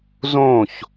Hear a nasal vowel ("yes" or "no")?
yes